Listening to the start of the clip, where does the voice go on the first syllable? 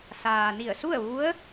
low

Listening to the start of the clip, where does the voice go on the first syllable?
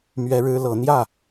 high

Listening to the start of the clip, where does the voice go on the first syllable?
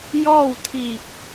falling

